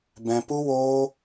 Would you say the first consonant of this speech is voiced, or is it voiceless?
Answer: voiced